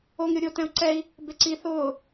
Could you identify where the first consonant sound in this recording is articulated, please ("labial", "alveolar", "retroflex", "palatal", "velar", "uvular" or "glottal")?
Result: velar